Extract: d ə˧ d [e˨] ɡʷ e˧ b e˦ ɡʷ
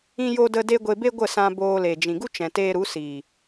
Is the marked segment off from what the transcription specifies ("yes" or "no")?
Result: yes